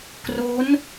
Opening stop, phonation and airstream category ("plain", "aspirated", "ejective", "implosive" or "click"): plain